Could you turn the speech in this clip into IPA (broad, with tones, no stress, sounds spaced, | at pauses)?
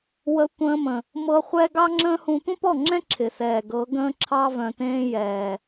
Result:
w ə˧ tʷ ə̃ː˧ m ə̃˨ | m ɤ˧ χʷ ɛ˦ ɡ ɑ˦ ŋ͡ǁ ə̃ː˦ h ũ˧ tʷ ə̃˦ p ɔ˦˨ ŋ͡ǁ ɛ̃˦ ǁʰ ɪ˨ s ɛː˨ ɡ ɤ˨˦ ɡ ə̃ː˦ ǁʰ ɑ˦ v œ̃˨ t ẽː˧ j ɛː˨